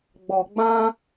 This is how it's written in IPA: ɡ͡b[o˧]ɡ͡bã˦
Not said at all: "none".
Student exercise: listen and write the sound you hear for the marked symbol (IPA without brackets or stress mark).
ɔ˧